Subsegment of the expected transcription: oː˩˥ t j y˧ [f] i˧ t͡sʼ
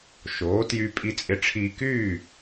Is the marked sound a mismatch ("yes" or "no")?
yes